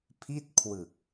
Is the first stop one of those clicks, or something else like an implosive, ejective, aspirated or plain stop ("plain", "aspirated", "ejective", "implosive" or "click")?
aspirated